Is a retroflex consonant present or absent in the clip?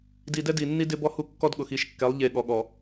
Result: absent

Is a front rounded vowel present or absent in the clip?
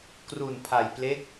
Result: absent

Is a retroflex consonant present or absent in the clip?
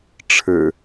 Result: present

